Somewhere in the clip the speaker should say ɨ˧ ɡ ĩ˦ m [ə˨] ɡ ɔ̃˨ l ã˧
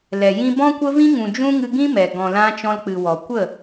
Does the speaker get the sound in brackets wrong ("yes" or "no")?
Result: yes